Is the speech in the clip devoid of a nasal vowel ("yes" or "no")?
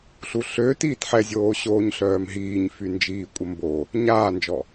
yes